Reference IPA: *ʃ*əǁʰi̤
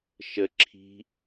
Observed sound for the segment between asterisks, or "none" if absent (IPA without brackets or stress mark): ʃ